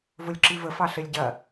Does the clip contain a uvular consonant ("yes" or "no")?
no